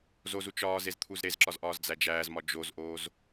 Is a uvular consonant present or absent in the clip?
absent